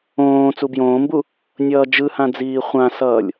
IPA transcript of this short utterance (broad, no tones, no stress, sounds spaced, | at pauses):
õː t͡s u b j õː m b u | nʲ ʌː d͡ʒ ɯ h ã d͡z iː χʷ ã s ʌː lʲ